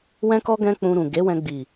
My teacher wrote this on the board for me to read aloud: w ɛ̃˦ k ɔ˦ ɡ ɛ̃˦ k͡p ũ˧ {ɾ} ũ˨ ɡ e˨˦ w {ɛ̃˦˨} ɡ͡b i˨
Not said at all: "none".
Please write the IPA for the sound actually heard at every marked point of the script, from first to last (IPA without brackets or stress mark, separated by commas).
ɾ, ɛ̃˧